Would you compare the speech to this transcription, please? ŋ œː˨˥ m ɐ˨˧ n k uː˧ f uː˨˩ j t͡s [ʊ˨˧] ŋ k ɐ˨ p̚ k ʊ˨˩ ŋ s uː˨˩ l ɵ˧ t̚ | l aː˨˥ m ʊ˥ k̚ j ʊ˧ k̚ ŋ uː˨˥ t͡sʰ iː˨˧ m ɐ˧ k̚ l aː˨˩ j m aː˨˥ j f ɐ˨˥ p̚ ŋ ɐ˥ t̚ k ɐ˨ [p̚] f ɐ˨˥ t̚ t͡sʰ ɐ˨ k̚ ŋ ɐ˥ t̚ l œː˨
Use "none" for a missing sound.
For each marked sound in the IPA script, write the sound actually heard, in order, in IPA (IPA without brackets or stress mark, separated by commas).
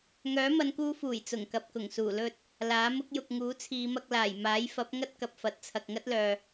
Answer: ʊ˨˩, p̚